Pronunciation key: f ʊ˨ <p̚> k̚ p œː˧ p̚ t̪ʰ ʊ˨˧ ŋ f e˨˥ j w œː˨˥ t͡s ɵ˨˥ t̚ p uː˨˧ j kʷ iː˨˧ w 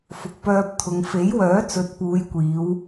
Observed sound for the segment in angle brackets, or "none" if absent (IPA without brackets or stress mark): none